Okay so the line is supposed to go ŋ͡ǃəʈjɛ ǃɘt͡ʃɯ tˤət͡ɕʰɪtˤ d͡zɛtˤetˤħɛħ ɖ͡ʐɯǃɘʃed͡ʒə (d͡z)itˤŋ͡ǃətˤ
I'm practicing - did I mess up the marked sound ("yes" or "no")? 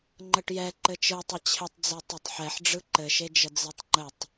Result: no